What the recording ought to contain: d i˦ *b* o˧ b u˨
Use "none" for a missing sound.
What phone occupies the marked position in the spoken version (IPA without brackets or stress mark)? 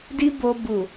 b